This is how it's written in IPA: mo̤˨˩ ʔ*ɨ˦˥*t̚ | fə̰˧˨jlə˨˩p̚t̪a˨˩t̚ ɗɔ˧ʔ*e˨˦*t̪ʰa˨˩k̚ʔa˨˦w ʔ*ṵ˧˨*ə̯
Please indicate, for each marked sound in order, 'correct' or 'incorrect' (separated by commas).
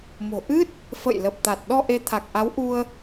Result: correct, correct, incorrect